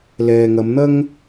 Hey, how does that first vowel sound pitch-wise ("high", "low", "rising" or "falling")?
low